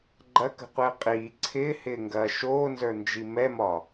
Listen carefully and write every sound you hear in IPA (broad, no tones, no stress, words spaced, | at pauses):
ɡ͡ǃɐkə̤qʷɪː qʼiː ǀʰɪːhɪːŋɡɐː ʃoːnzə˞nd͡ʒi mɛmɒ